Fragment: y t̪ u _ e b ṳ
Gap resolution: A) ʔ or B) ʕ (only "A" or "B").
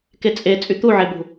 B